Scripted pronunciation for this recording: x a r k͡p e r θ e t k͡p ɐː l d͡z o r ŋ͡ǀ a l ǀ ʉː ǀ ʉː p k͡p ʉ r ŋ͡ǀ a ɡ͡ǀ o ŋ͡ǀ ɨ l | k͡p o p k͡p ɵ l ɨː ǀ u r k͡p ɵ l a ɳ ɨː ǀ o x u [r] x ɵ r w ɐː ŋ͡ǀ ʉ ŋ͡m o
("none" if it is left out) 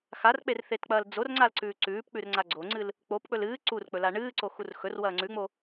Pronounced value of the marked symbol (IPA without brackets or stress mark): r